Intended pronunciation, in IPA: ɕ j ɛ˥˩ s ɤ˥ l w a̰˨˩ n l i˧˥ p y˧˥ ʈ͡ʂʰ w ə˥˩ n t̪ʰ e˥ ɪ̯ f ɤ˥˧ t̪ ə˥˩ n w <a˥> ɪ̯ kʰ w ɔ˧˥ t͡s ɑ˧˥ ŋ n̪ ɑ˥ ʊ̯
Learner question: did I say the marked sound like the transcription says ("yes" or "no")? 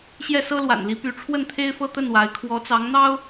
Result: no